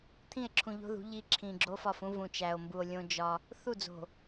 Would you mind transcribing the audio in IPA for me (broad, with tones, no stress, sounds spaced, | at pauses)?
t̪ʰ ĩ˦˨ e̯ ǁʰ ũ˨ ʎ o̤˦ ð ṳ˨˦ ʎ i˦ ǁʰ ĩ˨ ɡ͡ǁ o˦ f ɒ˦˨ f ũ˦ v ũ˨ t͡ʃ æ˨ o̯ m b u˨ o̯ lʲ õ˦ d͡ʒ ɒ˦ | θ u˦˨ d͡z o̤˨